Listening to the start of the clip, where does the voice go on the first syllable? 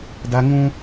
high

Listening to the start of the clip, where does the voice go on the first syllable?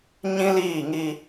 high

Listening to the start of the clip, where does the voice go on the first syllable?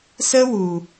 high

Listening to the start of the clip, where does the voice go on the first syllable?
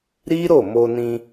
high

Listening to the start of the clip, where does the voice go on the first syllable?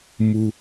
low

